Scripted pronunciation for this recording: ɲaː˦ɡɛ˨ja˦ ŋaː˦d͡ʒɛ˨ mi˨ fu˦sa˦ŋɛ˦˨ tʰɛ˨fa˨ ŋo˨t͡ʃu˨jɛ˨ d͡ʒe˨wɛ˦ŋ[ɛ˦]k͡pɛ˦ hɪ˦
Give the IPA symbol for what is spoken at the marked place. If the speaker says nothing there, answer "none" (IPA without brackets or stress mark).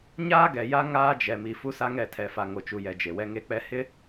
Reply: e˦